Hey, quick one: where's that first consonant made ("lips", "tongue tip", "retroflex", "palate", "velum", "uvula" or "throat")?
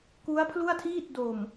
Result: velum